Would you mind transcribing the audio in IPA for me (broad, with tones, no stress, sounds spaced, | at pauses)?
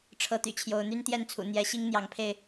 ʈ͡ʂʰ ɤ˨˦ t̪ y̰˨˩ t͡ɕʰ j o˨˦ ʊ̯ n̪ y˦ n t̪ j ɛ˥˨ n t͡sʰ ṵ˨˩ n̪ j ɛ˨˦ ɕ i˦ ŋ n̪ j ɑ˨˦ ŋ pʰ e˧ ɪ̯